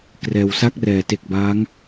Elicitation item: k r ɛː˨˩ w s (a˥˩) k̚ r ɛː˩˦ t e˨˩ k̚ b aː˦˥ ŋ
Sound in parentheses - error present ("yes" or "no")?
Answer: no